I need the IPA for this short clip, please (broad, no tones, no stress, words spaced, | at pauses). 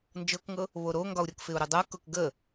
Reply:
nd͡ʒɤkŋɤ | βoɾoŋɡɒu̯ɾʲɤk fɪu̯ɾudˤɤkʊk ɡə